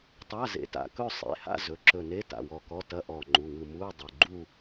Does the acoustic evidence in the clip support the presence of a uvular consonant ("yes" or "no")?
no